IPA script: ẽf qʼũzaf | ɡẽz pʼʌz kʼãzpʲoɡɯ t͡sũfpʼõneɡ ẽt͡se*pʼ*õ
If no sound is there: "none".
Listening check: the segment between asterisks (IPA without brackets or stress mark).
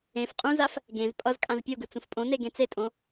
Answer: tʼ